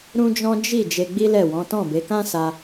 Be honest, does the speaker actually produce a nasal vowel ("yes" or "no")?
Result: yes